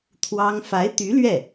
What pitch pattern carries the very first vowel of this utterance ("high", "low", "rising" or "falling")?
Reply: high